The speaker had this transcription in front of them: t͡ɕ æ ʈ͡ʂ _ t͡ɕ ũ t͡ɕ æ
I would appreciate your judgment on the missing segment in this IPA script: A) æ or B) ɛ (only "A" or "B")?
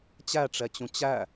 B